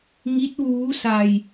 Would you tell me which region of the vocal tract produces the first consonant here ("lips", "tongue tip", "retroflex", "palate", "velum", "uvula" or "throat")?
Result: velum